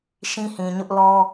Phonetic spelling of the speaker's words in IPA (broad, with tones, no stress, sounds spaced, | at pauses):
ʃ ĩ˦ h ĩ˨ ɲ ʊ˦ ʔ l ɔ˦